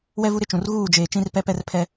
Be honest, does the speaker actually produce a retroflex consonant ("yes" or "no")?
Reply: no